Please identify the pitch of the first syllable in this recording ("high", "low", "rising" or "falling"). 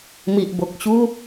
low